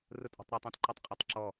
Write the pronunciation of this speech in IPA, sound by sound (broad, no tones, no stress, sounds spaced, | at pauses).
r ʊ tʼ ɔ̤ tˤ ɾ ʌ tˤ ɛ̃ t ǃ ʌ tˤ qʼ ɔ tˤ ǁ ɔ